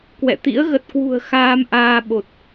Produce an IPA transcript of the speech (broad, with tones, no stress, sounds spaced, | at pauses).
k w ɛ̰˧˨ t̪ ḭ˧˥ ə̯ ɣ ə˨˩ t̚ k w ṳ˨˩ ə̯ x aː˧ m ʔ aː˧ ɓ o˨˩ t̚